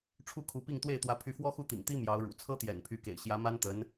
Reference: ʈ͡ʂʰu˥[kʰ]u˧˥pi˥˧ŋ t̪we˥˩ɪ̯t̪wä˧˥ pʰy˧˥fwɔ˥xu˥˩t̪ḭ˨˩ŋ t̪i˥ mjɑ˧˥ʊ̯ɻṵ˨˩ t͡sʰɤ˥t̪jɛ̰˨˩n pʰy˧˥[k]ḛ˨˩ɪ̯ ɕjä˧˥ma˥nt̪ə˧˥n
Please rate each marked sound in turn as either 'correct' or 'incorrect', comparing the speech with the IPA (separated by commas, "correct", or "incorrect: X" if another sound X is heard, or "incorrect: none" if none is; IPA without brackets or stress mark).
correct, correct